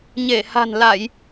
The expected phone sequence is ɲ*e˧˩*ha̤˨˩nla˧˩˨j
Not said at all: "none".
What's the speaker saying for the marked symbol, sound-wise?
e˧˩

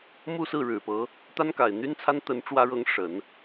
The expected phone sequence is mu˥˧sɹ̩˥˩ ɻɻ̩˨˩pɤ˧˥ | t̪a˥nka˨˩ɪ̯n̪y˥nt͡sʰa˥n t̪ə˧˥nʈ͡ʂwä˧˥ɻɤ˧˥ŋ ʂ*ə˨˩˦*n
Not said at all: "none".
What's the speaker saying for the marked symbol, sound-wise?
ə˨˩˦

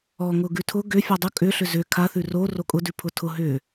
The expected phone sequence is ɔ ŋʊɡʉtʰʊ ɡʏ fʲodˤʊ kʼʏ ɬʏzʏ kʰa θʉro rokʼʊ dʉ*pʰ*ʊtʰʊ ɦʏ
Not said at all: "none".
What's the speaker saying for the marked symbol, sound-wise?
pʰ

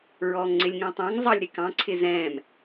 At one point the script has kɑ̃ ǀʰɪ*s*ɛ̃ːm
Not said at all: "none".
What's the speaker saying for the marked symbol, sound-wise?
z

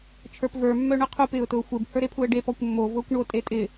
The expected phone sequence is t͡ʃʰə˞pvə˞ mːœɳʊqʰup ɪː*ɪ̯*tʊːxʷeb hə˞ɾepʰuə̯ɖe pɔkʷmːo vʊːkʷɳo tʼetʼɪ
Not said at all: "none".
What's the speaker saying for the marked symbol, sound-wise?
ʊ̯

